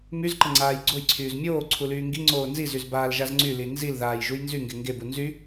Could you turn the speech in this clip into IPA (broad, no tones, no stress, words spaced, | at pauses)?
myzǃə ŋ͡ǀaːjɡ͡ǀojǀʰyːz mʲoː ǀʰulyːŋɡiŋ͡ǀoː nzizyz baːlʒazŋ͡ǀyli nzilðaːj ʒujnzyŋɡe ŋɡebu nzy